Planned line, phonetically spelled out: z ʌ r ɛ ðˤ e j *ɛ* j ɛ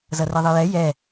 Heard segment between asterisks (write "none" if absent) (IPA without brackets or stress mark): ɛ